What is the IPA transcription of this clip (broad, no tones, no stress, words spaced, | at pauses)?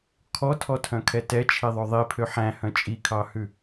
kʰɔtʰɔtʰœ̃kʰɛ tɛt͡ʃʰiðˤœ ðˤipʰø ħæ̃hœ̃ t͡ʃʼikʰɑhʉ